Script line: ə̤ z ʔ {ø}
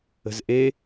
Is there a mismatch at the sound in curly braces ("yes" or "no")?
yes